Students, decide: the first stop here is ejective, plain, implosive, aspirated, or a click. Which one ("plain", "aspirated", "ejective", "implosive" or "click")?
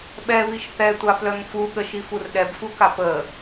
implosive